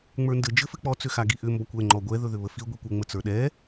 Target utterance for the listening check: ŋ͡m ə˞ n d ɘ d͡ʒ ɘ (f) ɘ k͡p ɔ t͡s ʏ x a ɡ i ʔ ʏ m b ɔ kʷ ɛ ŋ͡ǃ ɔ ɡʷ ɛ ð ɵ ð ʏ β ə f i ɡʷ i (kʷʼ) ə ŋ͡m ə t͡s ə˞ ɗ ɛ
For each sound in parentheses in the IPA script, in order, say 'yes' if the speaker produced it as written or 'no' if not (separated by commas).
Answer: yes, no